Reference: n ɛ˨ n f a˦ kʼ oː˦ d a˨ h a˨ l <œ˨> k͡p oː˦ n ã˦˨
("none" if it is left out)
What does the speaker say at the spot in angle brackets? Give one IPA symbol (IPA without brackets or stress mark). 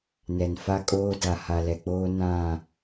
ɛ˨